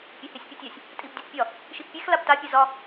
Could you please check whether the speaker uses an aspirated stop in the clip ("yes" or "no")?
no